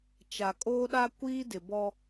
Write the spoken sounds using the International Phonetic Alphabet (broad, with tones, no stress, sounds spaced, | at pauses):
t͡ʃ a˨ kʼ oː˦ ɗ a˦ kʷ iː˦ d ɪ˨ b ɔ˦